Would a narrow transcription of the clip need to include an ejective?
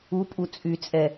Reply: yes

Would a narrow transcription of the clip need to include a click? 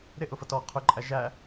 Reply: yes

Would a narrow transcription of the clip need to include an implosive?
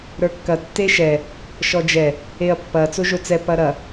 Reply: no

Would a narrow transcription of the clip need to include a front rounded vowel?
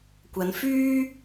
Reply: yes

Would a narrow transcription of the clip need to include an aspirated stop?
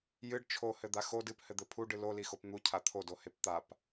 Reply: yes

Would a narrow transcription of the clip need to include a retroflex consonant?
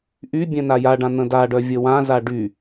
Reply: yes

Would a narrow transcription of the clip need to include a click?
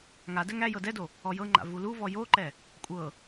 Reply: yes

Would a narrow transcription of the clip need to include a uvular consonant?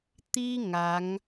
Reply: no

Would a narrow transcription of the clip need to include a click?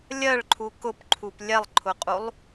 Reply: yes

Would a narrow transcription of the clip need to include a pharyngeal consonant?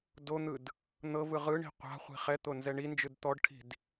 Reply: no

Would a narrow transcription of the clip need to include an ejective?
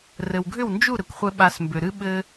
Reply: no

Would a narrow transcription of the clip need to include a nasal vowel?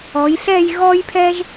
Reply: no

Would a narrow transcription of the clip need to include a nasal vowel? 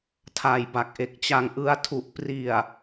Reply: no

